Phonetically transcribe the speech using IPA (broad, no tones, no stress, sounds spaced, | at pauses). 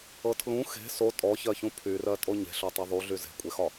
ɤ tʰ l ũ x e̤ s o tʼ ɔ ç ɜ ç ũ pʰ y r ɜ tʼ o ɲ e̤ ɬ ɔ tˤ ɤ ðˤ u ɮ y z e̤ kʷʼ e x ɒ